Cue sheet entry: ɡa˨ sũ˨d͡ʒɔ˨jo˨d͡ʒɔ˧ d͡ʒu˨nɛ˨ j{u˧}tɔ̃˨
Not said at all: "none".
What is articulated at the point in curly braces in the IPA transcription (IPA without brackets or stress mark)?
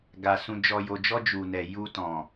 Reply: u˧